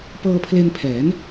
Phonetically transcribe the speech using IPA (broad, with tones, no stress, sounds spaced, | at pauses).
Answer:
p ɤː˧ pʰ l e˧ n pʰ ɛː˩˦ n